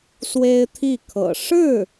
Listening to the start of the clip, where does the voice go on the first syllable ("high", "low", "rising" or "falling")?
high